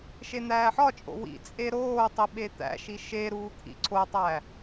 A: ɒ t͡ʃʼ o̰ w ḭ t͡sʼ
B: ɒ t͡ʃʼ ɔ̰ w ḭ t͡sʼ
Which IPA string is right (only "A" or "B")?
A